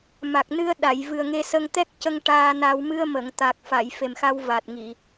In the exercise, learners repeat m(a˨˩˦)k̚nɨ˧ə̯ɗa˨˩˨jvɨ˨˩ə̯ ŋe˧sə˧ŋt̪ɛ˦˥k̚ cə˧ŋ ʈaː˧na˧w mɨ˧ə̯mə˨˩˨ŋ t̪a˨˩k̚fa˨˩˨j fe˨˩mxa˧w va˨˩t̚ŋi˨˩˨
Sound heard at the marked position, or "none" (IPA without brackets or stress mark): a˨˩